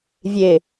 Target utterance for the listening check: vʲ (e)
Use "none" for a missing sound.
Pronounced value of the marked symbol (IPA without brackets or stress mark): e